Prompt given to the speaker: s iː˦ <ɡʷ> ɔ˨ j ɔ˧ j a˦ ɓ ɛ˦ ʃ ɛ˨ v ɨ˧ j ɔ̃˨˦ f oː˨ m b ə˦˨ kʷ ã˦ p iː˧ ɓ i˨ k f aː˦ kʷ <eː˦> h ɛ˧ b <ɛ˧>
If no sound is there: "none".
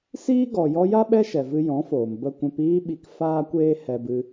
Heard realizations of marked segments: ɡ, eː˦, ɨ˧

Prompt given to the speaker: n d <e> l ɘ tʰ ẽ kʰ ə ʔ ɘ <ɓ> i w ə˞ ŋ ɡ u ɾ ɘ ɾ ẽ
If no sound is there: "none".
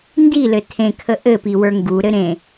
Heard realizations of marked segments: i, p

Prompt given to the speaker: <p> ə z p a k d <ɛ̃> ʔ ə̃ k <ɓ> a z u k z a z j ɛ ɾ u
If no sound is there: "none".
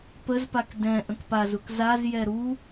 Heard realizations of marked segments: p, ɛ̃, p

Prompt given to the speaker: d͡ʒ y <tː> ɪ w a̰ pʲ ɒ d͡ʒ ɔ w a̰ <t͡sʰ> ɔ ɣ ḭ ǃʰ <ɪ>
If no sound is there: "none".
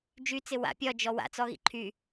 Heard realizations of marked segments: t͡s, t͡s, y

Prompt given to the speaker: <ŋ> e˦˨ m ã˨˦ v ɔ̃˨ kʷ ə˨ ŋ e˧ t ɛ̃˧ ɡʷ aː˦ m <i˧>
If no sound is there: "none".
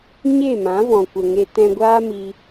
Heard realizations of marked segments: ɲ, i˧

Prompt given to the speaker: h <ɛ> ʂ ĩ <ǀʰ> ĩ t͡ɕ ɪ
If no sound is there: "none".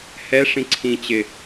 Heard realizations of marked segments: ɛ, ǀʰ

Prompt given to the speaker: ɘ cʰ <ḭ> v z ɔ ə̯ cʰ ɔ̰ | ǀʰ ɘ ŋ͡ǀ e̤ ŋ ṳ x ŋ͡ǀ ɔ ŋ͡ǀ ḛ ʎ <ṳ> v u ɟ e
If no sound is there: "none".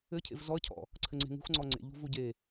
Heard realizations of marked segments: ḛ, ṳ

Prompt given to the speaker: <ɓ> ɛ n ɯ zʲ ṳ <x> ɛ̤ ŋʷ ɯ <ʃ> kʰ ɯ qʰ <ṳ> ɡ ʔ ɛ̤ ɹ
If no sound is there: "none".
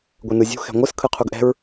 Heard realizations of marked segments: ɡʷ, x, s, u

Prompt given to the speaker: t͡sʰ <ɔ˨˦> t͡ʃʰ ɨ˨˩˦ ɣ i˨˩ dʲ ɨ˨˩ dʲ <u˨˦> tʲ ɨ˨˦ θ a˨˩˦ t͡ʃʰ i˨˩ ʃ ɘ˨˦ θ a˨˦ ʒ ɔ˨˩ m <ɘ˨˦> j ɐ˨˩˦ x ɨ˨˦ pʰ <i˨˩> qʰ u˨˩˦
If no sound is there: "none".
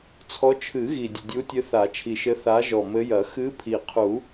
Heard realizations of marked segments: ɔ˨˦, u˨˦, ɘ˨˦, i˨˩

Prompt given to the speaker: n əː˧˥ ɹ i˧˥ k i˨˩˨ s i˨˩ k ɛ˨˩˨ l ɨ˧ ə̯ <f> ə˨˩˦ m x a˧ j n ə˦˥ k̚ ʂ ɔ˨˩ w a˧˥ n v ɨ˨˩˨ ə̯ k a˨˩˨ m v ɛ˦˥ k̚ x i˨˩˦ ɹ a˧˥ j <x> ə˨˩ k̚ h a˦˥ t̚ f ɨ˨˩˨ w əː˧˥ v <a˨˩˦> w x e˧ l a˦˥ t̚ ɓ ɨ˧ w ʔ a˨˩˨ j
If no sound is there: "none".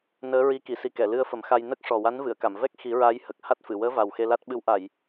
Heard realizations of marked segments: f, h, a˨˩

